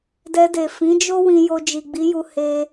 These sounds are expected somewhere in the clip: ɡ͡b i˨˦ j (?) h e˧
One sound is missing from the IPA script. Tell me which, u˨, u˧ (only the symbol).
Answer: u˧